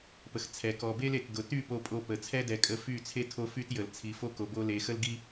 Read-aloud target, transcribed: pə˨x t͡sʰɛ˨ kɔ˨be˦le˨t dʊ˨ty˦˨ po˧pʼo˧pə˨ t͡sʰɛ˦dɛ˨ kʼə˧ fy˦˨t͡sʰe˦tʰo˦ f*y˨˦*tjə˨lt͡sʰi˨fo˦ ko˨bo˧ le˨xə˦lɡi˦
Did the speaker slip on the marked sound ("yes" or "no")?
yes